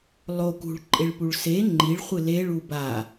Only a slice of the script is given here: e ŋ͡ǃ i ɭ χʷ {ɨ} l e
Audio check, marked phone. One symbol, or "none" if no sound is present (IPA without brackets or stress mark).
ɨ